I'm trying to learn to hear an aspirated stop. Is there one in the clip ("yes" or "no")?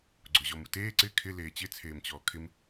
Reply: yes